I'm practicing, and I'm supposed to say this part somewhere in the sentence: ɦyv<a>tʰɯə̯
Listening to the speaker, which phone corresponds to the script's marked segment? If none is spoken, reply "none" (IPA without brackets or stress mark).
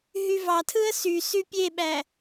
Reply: ɑ